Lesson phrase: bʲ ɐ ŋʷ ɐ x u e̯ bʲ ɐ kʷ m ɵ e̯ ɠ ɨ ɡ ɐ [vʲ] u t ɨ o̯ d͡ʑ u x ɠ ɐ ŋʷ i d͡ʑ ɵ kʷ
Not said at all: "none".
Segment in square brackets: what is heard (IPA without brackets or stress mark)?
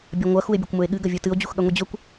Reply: vʲ